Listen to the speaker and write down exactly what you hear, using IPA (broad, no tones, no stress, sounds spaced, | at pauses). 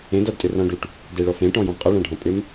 ẽ d a d tʼ ʏ r ɔ̃ ɖ u ʈ | d e ɭ ɔ f ẽ ʈ ɔ̃ j ɔ̃ v qʼ a ɭ ã ɖʱ ɔ̃ pʼ ʏ m